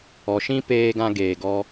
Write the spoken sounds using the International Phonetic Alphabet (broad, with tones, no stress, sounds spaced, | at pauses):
ɔ˨ ʃ ĩ˧ p eː˧ ɡ ã˧ ɡ eː˨ ɡ ɔ˧